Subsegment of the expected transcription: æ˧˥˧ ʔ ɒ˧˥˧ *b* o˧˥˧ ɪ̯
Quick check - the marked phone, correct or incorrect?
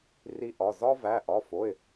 incorrect